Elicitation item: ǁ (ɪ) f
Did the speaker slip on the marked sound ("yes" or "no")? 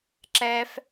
yes